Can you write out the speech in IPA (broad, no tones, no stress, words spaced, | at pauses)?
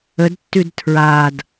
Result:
ədtːʉd tʰɹad